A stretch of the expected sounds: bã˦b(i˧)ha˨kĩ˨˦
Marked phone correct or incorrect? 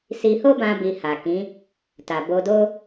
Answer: correct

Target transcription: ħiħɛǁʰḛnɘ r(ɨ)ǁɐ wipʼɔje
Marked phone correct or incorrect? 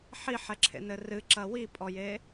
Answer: correct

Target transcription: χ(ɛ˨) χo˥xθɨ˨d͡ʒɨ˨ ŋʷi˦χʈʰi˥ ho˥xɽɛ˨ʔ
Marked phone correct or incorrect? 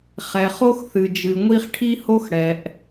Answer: correct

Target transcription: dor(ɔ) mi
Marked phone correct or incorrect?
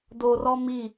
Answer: correct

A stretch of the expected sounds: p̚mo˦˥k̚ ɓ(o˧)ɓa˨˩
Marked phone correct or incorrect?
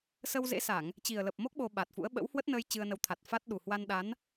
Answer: correct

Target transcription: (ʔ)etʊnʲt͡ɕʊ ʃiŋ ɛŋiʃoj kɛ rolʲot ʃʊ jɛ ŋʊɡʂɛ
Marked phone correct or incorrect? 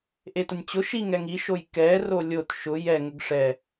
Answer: correct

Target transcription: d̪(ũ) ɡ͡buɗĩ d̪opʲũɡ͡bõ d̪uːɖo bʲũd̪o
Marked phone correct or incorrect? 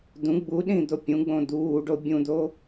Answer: correct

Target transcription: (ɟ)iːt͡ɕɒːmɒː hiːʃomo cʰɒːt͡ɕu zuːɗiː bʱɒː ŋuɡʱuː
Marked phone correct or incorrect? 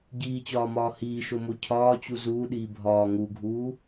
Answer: correct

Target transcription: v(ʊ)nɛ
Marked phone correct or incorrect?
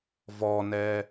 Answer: incorrect: ɔ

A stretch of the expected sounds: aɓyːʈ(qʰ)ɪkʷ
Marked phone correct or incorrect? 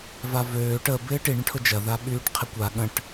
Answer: correct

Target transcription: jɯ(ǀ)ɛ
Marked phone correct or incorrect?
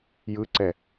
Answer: correct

